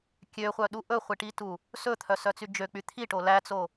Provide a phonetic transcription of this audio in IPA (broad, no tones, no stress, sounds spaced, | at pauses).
kʲ ø χʷ œ ɗ u ʔ ɵ χʷ i ʈ i t u | s ɵ t̪ʰ œ s œ t͡s y d͡ʒ ø k͡p y t̪ʰ i ʈ o l æ t͡s o